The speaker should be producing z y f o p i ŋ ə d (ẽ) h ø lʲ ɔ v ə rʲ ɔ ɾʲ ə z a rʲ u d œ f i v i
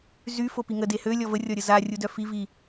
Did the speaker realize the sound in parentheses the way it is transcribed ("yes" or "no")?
no